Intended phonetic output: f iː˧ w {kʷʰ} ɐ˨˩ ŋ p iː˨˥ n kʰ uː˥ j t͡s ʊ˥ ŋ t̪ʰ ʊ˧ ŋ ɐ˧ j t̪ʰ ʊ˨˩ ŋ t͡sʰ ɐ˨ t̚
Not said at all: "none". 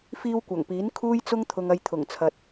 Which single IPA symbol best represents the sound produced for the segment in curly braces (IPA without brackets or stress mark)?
kʷ